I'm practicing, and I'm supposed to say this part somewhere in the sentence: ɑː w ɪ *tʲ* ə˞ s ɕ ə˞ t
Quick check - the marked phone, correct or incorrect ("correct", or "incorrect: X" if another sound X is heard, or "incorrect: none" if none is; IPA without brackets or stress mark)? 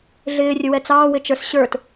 incorrect: t͡ʃ